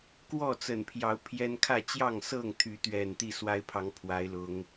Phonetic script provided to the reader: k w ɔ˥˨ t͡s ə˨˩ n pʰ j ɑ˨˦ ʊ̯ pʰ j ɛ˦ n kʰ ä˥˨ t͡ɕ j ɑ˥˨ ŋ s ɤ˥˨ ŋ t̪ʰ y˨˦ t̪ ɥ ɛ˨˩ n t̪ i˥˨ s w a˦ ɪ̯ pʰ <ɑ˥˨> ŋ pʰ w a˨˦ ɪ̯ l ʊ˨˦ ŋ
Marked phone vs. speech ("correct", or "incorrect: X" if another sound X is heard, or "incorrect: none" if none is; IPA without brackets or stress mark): incorrect: ɑ˨˦